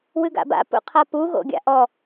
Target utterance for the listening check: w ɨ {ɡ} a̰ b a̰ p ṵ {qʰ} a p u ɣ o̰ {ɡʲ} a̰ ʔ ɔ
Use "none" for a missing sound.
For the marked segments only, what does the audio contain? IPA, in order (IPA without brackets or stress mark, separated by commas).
ɡ, qʰ, ɡʲ